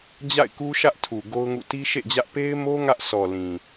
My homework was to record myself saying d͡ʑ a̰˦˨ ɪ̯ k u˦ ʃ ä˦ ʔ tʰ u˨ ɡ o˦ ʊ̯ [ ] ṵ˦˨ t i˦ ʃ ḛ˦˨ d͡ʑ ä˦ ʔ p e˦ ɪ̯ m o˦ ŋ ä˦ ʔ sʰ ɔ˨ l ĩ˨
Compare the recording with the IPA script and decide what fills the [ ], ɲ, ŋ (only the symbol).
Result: ŋ